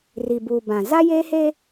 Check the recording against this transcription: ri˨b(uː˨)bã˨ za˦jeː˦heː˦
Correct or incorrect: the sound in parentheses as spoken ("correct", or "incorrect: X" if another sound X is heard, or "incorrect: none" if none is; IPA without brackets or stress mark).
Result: incorrect: u˨